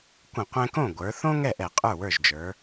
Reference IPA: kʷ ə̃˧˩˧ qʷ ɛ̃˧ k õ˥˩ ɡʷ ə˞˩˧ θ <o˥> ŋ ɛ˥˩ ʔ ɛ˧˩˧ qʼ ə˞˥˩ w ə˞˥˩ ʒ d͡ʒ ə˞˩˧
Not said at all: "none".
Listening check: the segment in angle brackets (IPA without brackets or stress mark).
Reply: õ˥